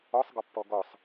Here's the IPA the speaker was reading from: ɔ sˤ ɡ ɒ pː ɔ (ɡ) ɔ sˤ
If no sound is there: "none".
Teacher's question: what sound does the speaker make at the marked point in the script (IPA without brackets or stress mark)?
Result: ɡ